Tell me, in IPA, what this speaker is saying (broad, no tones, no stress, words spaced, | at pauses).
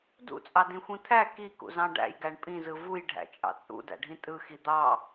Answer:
dṵt͡sʼɑdĩxʷĩ t̪ʰæ kikṵzɑ̃ ɖæ̰jɡæɳ pʼĩzɯ vujɖʱæ̰t͡ʃʼɑ̰ t͡sʼṵdæ̰ɖʱĩ tʼɯxi d̪ɑ